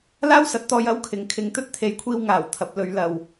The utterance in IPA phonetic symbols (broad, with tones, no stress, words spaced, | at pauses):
laː˥wsɐ˨˥t̚t̪ɔː˧j ɐ˥wkʰɪ˨ŋkʰɪ˧ŋ t̪ɵ˥t̚t̪ʰe˨˧jkʷʰiː˧w ŋaː˨˩wt̪ʰɐ˨p̚lɵ˨˧ɥlɐ˨w